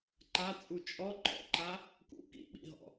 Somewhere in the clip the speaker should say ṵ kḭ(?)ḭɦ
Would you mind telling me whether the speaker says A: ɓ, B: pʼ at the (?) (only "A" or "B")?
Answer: A